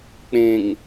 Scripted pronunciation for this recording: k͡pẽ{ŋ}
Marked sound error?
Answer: no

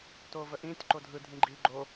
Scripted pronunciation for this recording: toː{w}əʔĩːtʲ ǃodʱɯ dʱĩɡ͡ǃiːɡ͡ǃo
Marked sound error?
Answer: yes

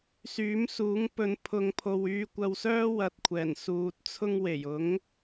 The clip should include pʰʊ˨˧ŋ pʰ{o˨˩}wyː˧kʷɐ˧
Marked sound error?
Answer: yes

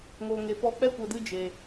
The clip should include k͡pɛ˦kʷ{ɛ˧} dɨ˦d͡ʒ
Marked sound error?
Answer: yes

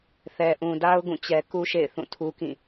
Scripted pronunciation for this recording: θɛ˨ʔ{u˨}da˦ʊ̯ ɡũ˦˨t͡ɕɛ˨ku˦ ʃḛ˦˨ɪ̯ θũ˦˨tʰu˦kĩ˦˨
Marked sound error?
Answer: yes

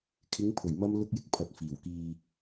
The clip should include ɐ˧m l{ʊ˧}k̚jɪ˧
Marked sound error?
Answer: no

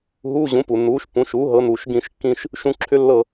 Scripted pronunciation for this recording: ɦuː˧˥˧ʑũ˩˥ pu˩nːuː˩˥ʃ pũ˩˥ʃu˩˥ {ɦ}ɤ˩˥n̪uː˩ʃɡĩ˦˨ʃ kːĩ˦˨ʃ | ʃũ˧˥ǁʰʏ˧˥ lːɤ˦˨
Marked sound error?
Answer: no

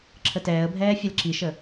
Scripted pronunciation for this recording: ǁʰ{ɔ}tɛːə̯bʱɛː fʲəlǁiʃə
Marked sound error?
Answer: yes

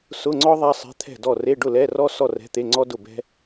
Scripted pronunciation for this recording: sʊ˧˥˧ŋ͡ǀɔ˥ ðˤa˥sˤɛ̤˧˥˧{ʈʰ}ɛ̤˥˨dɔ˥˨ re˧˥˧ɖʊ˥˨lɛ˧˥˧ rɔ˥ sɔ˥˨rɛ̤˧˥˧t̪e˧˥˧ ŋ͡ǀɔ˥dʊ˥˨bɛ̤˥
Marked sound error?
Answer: yes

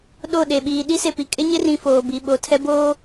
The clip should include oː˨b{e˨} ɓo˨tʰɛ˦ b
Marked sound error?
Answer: yes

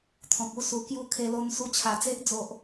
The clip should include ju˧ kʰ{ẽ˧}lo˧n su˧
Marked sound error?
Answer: yes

